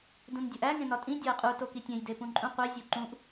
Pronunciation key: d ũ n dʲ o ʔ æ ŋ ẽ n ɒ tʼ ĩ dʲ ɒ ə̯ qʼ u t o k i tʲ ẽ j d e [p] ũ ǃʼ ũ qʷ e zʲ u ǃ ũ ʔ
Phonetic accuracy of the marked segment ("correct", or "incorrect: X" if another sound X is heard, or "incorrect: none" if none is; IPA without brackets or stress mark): correct